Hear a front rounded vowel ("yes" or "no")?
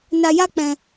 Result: no